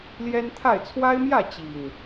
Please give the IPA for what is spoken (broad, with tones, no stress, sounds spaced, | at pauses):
l j ɛ˦ n t̪ʰ a˥˨ ɪ̯ t͡sʰ w a˦ ɪ̯ m j ä˥˨ t͡ɕ i˨˩ ŋ